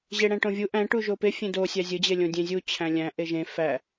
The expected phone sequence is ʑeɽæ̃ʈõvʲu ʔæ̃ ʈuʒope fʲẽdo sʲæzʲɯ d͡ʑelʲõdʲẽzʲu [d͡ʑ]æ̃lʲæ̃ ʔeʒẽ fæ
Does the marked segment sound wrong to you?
yes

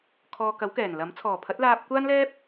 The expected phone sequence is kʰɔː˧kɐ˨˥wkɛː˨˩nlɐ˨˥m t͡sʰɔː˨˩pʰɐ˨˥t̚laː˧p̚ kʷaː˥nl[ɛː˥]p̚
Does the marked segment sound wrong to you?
no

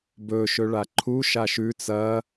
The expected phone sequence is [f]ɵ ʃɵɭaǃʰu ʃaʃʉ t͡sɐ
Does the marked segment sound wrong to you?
yes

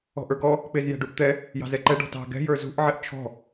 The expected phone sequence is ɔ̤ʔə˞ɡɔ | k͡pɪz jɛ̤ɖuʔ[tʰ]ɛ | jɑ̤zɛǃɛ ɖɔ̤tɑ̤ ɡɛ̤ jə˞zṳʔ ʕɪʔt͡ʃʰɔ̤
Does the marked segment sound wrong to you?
yes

